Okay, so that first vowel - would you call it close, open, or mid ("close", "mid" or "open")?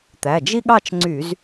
open